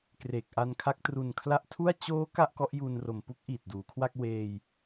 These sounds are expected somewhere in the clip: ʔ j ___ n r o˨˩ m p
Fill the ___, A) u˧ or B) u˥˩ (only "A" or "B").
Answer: A